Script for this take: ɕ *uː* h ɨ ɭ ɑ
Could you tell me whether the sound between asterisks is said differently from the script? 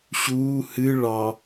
no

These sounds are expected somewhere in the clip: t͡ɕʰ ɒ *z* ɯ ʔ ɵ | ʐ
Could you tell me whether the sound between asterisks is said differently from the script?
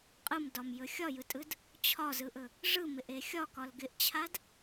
no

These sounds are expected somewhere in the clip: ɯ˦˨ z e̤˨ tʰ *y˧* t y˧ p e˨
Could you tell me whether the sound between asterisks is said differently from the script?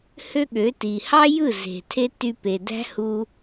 yes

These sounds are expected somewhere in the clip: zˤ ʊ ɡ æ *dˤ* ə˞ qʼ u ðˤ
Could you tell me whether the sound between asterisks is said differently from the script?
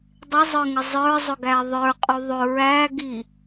yes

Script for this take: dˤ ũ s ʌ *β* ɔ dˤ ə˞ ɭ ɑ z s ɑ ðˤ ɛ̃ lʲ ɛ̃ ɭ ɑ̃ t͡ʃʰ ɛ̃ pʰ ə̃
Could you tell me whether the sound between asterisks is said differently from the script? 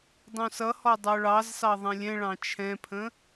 yes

